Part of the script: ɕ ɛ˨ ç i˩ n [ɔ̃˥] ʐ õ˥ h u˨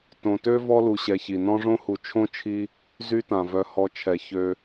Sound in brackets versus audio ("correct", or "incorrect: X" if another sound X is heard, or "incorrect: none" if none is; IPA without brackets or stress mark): correct